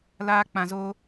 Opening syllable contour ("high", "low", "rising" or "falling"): high